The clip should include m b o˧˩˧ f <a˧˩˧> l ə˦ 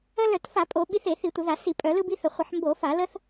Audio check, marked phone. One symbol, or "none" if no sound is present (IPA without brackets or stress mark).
a˧˩˧